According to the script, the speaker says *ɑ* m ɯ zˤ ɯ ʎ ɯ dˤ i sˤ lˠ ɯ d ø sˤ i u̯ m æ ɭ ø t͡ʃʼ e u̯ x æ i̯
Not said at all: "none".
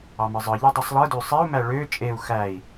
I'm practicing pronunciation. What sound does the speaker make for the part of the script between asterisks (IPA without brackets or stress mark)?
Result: ɑ